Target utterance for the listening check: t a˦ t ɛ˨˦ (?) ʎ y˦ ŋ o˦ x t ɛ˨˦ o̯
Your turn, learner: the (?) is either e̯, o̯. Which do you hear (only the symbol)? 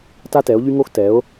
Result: o̯